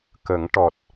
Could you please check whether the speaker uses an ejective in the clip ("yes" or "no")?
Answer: no